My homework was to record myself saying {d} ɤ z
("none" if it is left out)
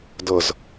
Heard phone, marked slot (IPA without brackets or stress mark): d